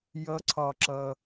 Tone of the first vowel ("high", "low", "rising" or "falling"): rising